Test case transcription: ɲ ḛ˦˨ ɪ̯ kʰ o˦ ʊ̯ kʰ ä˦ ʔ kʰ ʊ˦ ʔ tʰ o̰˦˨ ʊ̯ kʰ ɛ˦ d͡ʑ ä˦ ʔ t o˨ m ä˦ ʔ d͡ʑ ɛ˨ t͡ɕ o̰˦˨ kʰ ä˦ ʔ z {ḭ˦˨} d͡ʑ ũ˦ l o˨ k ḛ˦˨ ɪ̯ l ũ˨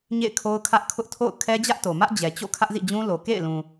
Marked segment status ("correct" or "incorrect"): correct